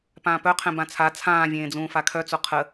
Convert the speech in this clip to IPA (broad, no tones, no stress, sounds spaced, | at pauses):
p ãː p œ qʰ ɛ̃ b ã t͡sʰ a t͡sʰ ãː vʲ ẽː d͡z ũː f a kʰ œ t͡s o qʰ ə